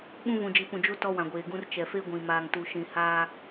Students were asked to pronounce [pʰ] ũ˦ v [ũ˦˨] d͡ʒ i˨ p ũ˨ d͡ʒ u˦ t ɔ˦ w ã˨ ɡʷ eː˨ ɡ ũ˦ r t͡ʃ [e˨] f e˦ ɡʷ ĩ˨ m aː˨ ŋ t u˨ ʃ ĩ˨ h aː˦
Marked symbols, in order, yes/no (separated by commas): no, no, no